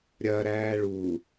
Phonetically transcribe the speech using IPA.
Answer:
ɾʲɐɾæː ɭu

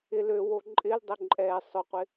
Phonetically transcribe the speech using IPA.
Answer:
ɪ løwo ǃʼɪldˤø ǃʼɛ sˤʊqʷɪ

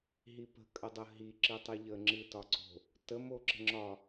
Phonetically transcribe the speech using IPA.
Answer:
ɦipə̤ kʼədˤəɦi ǁɨtˤɨʎə ŋ͡ǁɨtɒǀo̤ | tə moǁə̤ŋ͡ǁɒ

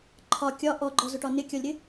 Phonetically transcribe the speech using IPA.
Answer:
ǃʰɒ kʲɒ ʔɔɡ͡ǃɔzʊʈɒ nɪkʲɒlʲɾɪ

